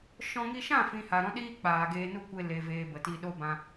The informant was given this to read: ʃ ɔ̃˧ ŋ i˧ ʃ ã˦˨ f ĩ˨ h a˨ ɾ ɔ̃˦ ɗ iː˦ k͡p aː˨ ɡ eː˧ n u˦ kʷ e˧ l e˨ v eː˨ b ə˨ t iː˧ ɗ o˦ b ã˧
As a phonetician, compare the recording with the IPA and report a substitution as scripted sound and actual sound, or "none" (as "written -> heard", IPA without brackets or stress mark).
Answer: none